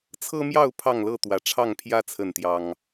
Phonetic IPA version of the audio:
t͡sʰ ɤ˦ m j ɑ˥˨ ʊ̯ pʰ ɑ˥˨ ŋ l ɤ˥˨ t̪ w ä˨˦ ʈ͡ʂʰ ɑ˥˨ ŋ pʰ j ä˦ t͡sʰ ə˥˨ n t̪ j ɑ˦ ŋ

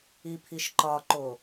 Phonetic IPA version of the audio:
i pʰ i ʃ ǃ ɒ ǃ o

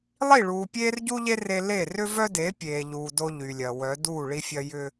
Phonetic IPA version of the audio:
lˠ i˦˨ ɭ uː˨ pʲ eː˦ r ɟ u˦ ʎ e˦ r e˦ l e˦˨ r ʏ˦ v œ˦ d e˨˦ pʲ eː˨ ʎ uː˨ d o˦ ʎ y˨ lʲ ɐ˨ w œ˨˦ d uː˦˨ ɭ i˦ fʲ ɐ˦ j ʏ˦

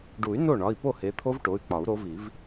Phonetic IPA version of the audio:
ɖ u˨˩˦ y̯ n o˥˩ ɳ ɒ˩˧˩ i̯ p o˥˩ h e˨˦ t̪ʰ o˦˥ v ʈ o˩˧˩ y̯ k͡p ɒ˨˩˦ u̯ ɾ o˨˦ v i˨˩˦ v

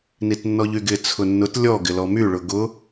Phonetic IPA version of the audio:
n i t nː ɔ ʎ y ɡ ɪ t͡sʰ ʊ nː ʊ t lʲ ɔ ɡ ɪ l ɔ m y ɭ ʊ ɡ ʊ

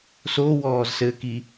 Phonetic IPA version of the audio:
s o w ɔː z s ɘ k i

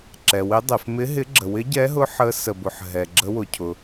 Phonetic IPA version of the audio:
ǁ ɛ˩ w ɪ˨˦ dˤ ɪ˩ f m ɪ˨˦ ɦ ɪ˨˦ ɡ͡ǁ ə˩ w ɪ˨˦ ɟ ɛ˨˦ ɦ ʊ˨˦ ħ ə˨˦ s ə˩ b ʊ˩ ħ ɦ ɛ˩ ɡ͡ǁ ə˨˦ w ʊ˩ cʰ ʊ˩

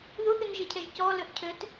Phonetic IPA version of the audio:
ð u θ y n ʒ e cʰ ɛ ʒ c ɔ l ø ʔ cʰ ø t

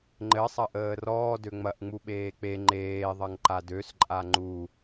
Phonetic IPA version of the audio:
ŋ͡ǃ ɘ sˤ ɐ ʔ əː r ɔː d ø ŋ͡m ɐ ʔ ŋ͡m u ɓ eː k͡p e ŋ͡ǃ eː ðˤ ɐ ŋ ǃ a d ø s ǃʼ a ŋ͡ǃ u

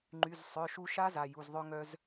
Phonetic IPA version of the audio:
ŋ͡ǃ y˩˧˩ z sˤ œ˩˧˩ ʃ u˧ ʃ a˦˥ z a˩˧˩ j u˩˧˩ z ðˤ œ˧ ŋ œ˧ z

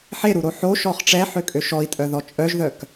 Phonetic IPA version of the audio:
ħ e ɾ u ɾ o ħ o ʃ ɔ χ ʈ͡ʂ ɛ ħ ø kʼ ø ʃ ɔ i̯ tʼ œ ð ɔ t͡ʃʼ œ ʒ ð œ k

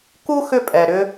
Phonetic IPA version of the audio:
k u˦ x ʏ˦ pʼ ɛ˨ ɾ ʏ˧

